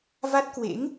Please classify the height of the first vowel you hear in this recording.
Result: low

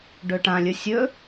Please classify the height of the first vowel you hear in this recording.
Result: mid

